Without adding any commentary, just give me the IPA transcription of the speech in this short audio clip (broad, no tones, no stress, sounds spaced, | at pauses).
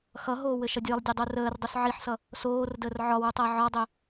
x ʌ ɦ oː w ɘ ʃ ʌ dʲ əː lˠ dʲ ø dˤ u r əː r dˤ ø s ʕ i ħ s ʌ | s oː r d əː r ʕ ɒ w u tˤ əː ʕ ɒ dˤ ø